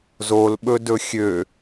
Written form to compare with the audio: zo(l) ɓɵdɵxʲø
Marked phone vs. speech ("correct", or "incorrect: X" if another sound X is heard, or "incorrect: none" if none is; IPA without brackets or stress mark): correct